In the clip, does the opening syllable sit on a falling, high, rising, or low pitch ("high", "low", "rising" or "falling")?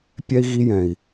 high